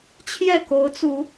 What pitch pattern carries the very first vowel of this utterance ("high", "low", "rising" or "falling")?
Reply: falling